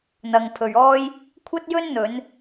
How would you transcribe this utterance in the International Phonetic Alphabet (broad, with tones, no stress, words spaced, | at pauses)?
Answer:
n̪ɐ˨ŋpʰɵ˨ɥɔː˥j | kʷʰɐ˥t̚jɵ˥n n̪ɵ˨˧n